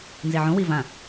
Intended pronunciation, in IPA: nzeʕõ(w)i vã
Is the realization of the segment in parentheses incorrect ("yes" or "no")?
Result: no